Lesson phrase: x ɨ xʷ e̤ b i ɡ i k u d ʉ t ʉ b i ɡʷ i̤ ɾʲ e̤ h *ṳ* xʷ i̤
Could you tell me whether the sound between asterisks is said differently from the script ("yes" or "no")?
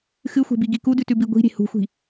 no